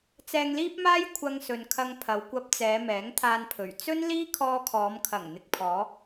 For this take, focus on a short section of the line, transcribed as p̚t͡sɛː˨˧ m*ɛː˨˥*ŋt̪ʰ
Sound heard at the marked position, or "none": ɛː˨˥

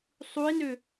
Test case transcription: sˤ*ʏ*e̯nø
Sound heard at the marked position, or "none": u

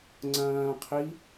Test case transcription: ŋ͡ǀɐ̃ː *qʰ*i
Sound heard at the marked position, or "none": qʰ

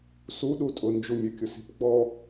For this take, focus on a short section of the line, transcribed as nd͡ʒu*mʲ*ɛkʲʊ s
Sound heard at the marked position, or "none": mʲ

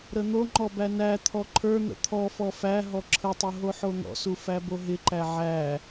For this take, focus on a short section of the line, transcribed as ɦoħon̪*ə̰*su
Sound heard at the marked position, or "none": ɔ̰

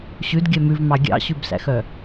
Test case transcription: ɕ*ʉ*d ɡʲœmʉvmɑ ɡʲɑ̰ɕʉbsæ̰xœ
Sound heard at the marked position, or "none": ʉ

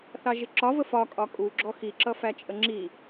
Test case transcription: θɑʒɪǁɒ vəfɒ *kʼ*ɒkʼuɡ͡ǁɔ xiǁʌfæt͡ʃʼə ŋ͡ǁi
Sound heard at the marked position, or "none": kʼ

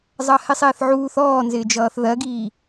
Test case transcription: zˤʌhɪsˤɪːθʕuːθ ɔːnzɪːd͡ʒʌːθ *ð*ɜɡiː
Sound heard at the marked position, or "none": ð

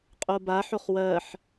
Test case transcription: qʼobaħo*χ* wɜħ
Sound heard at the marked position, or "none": χ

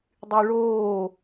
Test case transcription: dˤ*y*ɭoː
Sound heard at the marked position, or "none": y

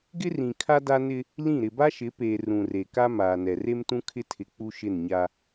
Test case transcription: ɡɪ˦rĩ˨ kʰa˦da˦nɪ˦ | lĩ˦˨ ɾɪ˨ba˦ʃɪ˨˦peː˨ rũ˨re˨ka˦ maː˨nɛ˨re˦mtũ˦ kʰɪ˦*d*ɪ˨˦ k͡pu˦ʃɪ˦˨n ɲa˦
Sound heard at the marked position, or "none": tʰ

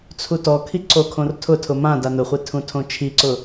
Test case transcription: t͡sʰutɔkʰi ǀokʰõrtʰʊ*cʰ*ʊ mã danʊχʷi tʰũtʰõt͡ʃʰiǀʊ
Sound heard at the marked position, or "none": tʰ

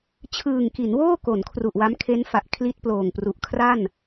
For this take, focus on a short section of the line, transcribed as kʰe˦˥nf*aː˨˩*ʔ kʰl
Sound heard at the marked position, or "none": a˨˩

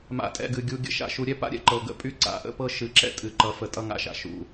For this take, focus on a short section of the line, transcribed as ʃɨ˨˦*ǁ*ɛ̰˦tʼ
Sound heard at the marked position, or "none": ǁ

